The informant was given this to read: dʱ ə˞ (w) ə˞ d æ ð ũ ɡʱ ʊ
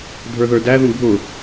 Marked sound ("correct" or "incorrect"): incorrect